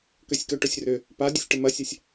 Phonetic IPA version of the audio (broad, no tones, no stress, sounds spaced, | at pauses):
k ø sʲ k œ ʈ œ sʲ r ø | p a dʲ ø sʲ ʈ ə m ɐ sʲ a sʲ